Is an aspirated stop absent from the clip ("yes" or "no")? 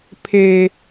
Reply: no